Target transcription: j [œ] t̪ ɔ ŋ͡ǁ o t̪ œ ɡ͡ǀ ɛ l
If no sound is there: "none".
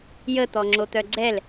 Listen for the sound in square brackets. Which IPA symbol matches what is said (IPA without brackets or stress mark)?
ə